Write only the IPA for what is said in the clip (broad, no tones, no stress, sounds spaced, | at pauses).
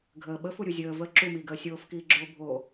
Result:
ɡʱ əː ɓ ə f u ɾʲ u zʲ əː v ə ǁ u m iː ɡ əː sʲ oː f k iː ɡ͡ǁ oː bʱ o